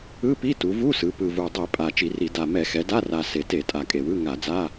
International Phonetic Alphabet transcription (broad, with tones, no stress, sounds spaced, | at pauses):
ɯ˧˥˧ p i˧˥˧ t u˩˧ v u˧˥˧ s ɯ˩˧ p ɯ˨˩ v u˨˩ dˤ i˧˩˧ pʼ a˨˩ t͡ʃ i˧˩˧ r i˧˩˧ d a˨˩ m ɛ˧˩˧ x ɛ˩˧ d a˧˥˧ r a˨˩ s e˨˩ t e˧˩˧ tʼ a˨˩ kʼ e˨˩ w ɯ˧˥˧ ŋ a˧˩˧ d͡z a˧˥˧